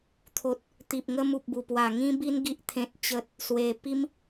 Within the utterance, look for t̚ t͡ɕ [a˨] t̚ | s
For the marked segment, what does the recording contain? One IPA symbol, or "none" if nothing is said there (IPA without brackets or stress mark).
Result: ə˨